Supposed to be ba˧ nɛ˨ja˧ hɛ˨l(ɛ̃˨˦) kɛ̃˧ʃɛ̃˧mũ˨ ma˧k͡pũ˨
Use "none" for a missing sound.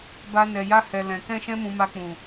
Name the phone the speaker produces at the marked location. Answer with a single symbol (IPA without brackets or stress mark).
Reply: ɛ̃˨